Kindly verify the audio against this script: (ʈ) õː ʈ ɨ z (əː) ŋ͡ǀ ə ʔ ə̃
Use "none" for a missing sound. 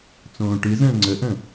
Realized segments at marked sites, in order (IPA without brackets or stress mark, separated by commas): t͡s, ə̃ː